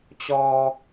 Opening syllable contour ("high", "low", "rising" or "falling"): low